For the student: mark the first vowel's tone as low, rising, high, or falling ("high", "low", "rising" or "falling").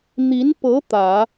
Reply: rising